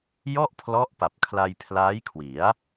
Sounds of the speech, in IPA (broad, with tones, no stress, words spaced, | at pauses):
jɔ˥˩ʔpʰlɔ˦˥ʔ pa˨˩p̚kʰla˧jpʰlaː˦˥jkʰwi˩˦a̯